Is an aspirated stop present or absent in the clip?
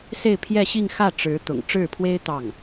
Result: present